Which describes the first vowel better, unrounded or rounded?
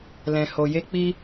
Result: unrounded